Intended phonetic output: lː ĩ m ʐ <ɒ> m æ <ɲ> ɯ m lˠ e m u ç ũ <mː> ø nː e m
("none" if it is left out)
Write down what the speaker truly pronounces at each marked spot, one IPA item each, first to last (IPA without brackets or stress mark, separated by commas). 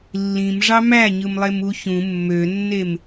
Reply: ɑ, ɲ, mː